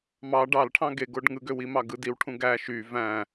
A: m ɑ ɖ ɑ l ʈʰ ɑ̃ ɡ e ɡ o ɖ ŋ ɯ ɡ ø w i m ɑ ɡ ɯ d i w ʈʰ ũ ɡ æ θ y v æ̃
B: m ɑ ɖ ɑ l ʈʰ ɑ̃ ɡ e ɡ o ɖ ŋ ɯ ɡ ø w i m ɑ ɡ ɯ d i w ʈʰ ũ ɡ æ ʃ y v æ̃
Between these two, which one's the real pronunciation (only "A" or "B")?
B